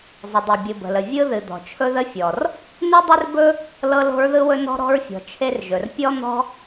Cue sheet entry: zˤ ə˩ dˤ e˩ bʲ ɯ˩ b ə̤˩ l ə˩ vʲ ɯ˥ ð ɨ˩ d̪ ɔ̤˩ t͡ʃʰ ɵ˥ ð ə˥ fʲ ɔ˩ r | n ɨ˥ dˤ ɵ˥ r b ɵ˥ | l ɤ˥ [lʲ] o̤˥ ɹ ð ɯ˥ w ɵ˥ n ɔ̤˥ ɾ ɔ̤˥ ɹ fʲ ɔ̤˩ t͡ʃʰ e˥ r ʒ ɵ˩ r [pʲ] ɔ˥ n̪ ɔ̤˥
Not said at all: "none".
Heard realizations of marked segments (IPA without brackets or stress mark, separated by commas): l, pʲ